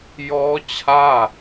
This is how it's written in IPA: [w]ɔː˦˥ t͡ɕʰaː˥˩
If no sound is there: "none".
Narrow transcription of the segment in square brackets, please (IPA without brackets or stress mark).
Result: j